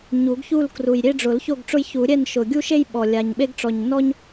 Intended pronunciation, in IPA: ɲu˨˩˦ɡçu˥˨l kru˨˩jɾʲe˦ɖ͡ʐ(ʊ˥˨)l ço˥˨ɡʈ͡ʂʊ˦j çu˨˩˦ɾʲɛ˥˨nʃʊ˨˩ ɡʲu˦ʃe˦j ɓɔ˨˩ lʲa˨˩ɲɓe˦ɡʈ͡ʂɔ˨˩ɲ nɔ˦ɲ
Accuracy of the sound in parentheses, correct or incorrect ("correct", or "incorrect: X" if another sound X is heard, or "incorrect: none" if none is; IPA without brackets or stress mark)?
incorrect: ʊ˨˩˦